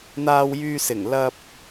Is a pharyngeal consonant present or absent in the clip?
absent